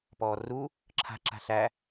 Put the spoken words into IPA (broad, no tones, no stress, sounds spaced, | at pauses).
p ɔː r u | ǁʰ a̤ ǁ a̤ ɬ æ